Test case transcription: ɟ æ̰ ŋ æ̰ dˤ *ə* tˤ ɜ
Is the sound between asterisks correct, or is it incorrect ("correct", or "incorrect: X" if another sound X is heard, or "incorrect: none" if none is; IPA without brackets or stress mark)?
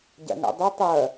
incorrect: ɛ